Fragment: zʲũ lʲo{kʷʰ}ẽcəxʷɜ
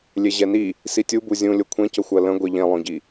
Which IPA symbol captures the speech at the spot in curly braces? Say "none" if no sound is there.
kʷʰ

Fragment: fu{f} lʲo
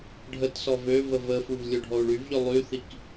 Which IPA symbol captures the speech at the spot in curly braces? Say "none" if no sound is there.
v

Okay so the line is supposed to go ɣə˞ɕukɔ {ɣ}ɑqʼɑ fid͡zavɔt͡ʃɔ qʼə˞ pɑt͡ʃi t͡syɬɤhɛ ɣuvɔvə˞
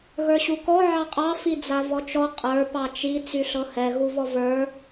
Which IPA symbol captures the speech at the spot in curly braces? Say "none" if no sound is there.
ʕ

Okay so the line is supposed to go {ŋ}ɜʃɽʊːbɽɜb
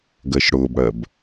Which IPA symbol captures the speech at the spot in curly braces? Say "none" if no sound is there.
ɡ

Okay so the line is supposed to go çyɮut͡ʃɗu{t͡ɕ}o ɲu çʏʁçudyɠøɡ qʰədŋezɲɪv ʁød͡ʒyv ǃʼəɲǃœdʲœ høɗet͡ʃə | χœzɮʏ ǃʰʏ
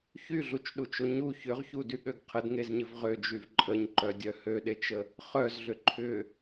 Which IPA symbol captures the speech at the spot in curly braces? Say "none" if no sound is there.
t͡ʃ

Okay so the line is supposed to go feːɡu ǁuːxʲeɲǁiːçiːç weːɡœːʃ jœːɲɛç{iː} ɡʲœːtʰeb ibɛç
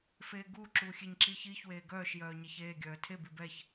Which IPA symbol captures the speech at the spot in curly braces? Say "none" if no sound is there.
eː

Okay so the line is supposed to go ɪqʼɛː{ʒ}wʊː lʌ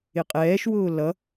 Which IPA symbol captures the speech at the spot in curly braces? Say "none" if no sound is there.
ʃ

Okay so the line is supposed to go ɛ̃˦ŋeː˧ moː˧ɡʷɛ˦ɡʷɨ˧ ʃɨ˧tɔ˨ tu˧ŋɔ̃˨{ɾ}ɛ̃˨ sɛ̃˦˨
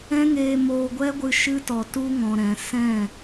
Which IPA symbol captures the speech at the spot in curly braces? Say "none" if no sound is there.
ɾ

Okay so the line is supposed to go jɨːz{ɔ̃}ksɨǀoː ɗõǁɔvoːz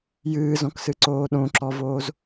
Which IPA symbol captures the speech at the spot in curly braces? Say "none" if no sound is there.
ɔ̃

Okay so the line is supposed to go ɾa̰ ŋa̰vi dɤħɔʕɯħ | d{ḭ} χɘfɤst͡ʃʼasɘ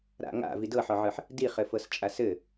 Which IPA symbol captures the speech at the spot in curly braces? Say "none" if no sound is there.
i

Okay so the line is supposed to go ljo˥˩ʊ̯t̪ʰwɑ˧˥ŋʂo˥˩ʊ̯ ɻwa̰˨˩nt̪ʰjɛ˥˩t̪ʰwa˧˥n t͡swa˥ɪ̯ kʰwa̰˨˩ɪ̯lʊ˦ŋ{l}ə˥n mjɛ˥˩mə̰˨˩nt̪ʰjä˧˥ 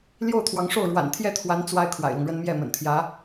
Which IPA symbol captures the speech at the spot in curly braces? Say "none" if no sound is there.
ɻ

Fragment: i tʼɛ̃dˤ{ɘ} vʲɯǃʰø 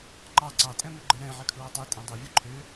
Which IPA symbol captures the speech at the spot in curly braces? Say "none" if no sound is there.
ø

